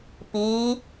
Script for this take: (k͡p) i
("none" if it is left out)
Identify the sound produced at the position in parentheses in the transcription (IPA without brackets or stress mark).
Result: p